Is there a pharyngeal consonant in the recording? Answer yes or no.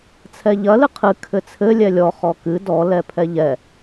no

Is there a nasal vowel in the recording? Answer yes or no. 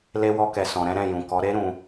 yes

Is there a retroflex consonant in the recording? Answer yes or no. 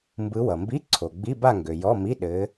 no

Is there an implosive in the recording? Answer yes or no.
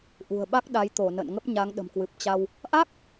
yes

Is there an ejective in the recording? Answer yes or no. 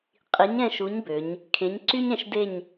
yes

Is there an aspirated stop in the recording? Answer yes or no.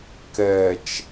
no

